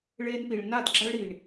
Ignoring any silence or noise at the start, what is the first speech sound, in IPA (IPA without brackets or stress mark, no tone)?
ɭ